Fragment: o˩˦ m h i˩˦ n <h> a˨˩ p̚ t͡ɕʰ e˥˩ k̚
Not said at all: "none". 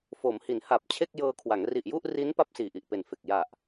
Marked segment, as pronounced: h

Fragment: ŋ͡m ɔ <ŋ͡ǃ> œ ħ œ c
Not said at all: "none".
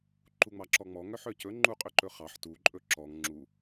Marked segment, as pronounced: ŋ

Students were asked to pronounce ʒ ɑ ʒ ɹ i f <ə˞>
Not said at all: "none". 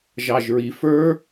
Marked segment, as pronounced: ə˞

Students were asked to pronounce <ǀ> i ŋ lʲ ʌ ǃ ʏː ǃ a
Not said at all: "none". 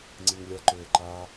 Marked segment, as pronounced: ŋ͡ǀ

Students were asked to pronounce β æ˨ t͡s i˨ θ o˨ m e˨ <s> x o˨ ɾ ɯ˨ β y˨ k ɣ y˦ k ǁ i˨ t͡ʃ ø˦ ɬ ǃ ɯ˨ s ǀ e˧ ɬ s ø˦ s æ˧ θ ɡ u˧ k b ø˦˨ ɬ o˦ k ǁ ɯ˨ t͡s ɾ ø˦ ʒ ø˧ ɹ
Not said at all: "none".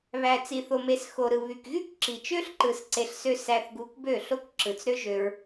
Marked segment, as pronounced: s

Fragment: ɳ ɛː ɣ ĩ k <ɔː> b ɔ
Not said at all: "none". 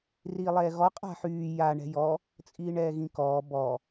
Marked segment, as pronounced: ɔː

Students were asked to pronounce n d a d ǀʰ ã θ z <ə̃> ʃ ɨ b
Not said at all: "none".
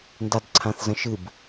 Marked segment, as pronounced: ə̃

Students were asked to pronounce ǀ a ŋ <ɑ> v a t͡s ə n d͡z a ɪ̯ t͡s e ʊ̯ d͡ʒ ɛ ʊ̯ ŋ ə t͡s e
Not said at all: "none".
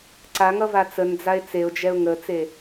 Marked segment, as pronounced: ʌ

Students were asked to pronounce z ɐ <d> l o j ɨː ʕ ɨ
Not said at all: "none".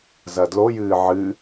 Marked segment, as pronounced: d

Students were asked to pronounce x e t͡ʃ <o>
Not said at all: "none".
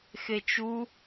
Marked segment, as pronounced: u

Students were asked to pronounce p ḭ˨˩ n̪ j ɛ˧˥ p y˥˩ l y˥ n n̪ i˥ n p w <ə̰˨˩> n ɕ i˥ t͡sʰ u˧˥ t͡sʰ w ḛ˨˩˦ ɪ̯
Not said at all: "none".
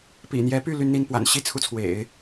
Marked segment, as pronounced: a̰˨˩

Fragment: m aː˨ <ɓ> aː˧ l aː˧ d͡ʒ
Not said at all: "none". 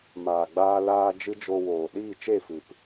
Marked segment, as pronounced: ɡ͡b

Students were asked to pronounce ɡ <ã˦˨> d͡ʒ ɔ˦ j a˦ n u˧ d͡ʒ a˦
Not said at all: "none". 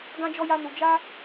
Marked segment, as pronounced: ã˦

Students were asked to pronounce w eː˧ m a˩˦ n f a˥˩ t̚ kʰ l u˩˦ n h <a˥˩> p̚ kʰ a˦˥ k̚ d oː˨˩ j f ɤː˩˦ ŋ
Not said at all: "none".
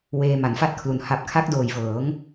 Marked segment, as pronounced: a˨˩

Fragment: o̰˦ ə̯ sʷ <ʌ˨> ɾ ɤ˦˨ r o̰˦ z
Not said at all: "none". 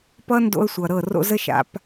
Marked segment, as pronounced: ʌ˨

